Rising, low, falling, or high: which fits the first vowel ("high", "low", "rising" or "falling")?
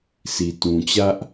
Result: low